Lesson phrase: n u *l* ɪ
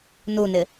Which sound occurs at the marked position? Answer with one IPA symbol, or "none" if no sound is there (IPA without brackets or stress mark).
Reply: n